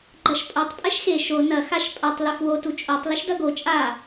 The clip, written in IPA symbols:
ɡ͡ǃɐʃpʼotˤ pʼɛʃxe ʃo nɐ xaʃpʼɐtˤ loxwo tut͡ʃʼotˤ lɘʃdɐɡo t͡ʃʼa

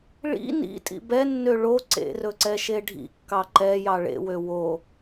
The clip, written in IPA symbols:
ɭḭ nḭ tʼḭbɛnːø ɭo ǀḛrɵ ǀɛʃeɖʱḭkːɑ ǃɛ jɑɭḛwø wo

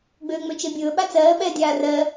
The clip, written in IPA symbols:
ɡ͡bøːŋ͡møt͡ʃebʲɵː ɓat͡sɜː ɓɛːdʲaːrɜ

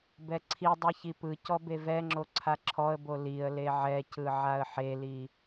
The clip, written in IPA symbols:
bɛǀʰidˤɛ çipɯcɔ bevɛŋ͡ǁo ǀʰaǁʰɔə̯bo liə̯ leʕɛcɯ ʕaə̯ħeli

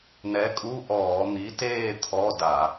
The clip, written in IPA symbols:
nɛ˨˥kʼu˧˥˧ʔɔː˧˩˧ n̪i˨˥teː˥˧ t̪ʰɔ˧˥˧da˧˩˧

